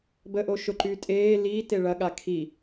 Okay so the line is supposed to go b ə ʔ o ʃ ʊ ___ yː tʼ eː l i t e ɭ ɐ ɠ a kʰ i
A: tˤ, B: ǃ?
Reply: B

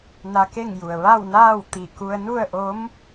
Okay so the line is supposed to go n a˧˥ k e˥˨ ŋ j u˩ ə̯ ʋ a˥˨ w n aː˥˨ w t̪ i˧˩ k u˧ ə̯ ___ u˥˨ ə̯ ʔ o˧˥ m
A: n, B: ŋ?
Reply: A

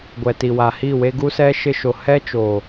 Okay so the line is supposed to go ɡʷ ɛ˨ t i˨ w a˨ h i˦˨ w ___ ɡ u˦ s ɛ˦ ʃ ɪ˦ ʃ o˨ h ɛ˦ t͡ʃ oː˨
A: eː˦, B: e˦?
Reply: B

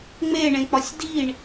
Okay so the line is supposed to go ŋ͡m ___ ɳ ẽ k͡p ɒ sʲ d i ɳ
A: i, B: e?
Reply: B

